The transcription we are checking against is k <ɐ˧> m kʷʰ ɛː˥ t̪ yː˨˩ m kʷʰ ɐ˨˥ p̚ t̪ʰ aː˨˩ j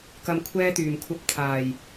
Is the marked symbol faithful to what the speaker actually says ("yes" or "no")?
yes